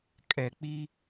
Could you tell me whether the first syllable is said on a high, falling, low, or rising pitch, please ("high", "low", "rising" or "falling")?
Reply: low